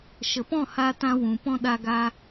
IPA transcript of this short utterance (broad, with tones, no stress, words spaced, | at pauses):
ʃə˨pɔ̃˦˨haː˧ tã˦wũ˨ pɔ̃˦ɗa˧ɡaː˧